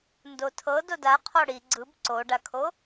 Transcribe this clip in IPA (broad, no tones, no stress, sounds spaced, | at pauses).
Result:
n d o tʰ ɤ d o d a qʰ ɔ ɽ i ɡ͡ǀ ɯ b ǀ o ɖ a kʰ o